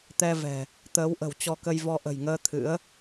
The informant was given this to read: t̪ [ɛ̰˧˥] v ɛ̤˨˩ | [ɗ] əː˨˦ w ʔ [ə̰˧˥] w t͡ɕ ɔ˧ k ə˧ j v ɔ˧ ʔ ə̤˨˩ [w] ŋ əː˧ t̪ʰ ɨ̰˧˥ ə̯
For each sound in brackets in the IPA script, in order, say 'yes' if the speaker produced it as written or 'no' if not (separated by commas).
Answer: no, no, no, no